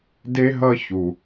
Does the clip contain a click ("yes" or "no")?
no